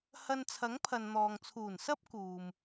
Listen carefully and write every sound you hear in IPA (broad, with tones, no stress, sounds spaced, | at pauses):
h ɐ˧ n t͡sʰ ɐ˨˥ ŋ pʰ ɐ˨ n n̪ ɔː˨ ŋ t͡sʰ uː˨˩ n s ɐ˥ p̚ k uː˨ m